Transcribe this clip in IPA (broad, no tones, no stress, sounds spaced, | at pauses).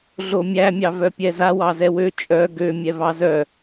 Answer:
ɮ o mʲ æ mʲ ɑ v œ pʲ ɛ z a w ɑ z ɛ w ø t͡ʃʼ œ ɡ ø mʲ ɛ v ɑ z œ